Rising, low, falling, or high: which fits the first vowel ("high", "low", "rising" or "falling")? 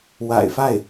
low